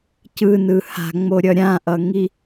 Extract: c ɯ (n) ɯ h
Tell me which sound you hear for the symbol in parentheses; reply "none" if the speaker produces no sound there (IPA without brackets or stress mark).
n